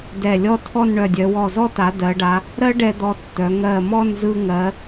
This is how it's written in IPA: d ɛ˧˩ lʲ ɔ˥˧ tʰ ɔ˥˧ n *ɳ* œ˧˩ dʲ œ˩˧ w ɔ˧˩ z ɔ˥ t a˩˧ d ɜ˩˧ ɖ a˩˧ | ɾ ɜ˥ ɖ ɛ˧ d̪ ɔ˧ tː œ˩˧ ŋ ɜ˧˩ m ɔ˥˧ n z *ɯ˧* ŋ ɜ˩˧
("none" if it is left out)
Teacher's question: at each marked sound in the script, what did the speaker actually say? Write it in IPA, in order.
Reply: ɳ, ɯ˧

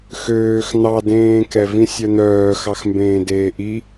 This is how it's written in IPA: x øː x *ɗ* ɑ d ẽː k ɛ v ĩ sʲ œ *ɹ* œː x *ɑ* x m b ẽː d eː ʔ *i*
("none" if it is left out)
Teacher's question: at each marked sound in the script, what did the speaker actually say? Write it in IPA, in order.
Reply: n̪, n̪, ɑ, i

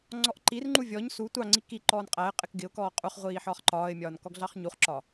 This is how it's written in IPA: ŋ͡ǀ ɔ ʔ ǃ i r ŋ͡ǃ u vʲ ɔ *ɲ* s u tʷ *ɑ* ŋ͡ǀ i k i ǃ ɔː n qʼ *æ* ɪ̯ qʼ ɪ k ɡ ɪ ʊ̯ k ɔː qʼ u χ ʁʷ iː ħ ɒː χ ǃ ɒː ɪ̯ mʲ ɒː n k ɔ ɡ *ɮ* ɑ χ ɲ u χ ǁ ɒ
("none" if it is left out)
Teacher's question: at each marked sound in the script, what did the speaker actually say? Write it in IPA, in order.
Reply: ɲ, ɑ, æ, ɮ

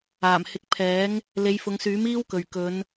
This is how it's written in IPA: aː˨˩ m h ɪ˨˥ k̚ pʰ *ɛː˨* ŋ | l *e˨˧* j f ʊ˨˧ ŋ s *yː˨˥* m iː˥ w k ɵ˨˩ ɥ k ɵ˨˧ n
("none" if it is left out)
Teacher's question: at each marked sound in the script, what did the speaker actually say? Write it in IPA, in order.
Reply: ɛː˨˥, e˨˧, yː˨˥

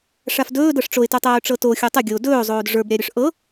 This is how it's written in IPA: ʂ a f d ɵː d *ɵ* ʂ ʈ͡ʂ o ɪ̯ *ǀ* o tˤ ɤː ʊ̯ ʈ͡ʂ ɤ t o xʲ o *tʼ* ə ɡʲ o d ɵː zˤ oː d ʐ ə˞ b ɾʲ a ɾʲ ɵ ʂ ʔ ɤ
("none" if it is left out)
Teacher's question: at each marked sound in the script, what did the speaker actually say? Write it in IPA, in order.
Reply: ɤ, t, tˤ

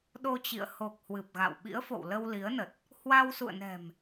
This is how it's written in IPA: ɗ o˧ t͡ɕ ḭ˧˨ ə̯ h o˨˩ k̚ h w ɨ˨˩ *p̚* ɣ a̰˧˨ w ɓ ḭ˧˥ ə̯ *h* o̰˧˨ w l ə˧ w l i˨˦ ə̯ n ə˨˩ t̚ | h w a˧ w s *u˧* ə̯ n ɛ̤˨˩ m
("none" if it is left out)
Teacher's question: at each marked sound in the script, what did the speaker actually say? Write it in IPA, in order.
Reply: p̚, f, ṵ˧˨

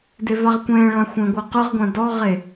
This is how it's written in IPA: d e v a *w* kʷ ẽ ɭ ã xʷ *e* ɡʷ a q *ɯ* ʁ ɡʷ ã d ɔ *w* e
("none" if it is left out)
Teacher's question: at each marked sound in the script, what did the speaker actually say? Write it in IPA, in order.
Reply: ʁ, ẽ, ɯ, ʁ

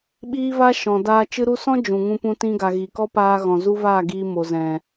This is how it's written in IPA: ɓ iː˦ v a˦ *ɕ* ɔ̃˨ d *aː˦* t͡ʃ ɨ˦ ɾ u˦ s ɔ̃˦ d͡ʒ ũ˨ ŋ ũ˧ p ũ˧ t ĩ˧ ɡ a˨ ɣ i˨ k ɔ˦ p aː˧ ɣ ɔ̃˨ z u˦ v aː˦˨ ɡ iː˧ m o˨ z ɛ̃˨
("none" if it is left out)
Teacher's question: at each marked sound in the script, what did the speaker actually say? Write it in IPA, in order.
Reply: ʃ, aː˧

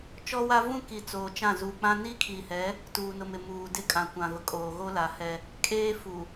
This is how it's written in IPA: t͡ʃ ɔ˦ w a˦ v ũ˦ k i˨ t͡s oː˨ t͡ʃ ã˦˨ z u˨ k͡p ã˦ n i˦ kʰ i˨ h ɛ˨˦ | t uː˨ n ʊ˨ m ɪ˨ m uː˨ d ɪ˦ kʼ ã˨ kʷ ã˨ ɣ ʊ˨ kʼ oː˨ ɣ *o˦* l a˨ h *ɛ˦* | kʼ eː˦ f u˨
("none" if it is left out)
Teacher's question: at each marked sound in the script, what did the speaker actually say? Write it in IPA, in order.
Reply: o˦, ɛ˦

